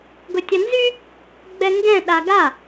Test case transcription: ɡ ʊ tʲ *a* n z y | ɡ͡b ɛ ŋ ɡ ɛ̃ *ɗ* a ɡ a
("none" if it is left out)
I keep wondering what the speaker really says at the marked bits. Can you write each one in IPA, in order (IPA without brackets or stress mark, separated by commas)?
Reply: ɐ, ɗ